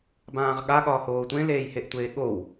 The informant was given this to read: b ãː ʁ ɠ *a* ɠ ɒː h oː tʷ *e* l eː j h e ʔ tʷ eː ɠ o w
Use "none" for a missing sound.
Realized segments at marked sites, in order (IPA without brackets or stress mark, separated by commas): a, ẽ